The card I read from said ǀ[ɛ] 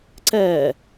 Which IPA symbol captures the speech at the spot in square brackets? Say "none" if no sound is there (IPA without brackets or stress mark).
ɛː